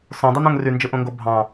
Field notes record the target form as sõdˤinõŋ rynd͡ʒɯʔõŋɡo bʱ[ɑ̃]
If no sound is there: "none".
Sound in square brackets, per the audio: ɑ̃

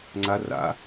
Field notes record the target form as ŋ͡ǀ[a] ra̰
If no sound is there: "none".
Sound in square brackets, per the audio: a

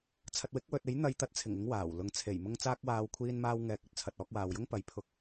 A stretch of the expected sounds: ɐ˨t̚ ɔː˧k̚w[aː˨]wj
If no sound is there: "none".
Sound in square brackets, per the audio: aː˨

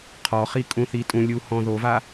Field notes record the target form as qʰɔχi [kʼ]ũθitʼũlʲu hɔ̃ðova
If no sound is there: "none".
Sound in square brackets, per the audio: kʼ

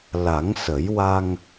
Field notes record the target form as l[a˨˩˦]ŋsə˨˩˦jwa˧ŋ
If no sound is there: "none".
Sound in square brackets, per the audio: a˨˩˦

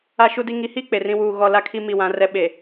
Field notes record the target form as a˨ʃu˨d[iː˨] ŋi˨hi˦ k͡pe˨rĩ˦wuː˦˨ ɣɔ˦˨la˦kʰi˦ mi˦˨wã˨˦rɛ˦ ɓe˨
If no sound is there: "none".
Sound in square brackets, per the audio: i˨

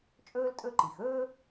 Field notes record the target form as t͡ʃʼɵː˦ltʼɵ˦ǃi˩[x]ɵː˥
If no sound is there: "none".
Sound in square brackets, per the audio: x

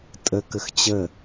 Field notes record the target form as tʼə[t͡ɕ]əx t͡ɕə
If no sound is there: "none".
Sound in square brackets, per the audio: k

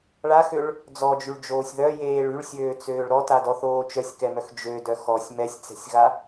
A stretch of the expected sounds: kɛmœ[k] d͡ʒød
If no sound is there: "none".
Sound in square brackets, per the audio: x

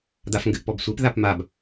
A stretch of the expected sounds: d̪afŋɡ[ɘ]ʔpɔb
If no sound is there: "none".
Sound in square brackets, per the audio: ɘ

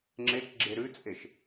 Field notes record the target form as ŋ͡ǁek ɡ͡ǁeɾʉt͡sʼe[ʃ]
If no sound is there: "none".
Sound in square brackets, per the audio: ʃ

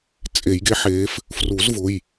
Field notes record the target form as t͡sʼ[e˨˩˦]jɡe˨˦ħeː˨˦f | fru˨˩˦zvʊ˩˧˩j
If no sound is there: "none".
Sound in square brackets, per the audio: e˨˩˦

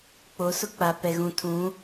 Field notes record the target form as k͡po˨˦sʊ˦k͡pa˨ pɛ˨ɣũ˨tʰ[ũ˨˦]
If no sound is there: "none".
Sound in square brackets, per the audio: ũ˨˦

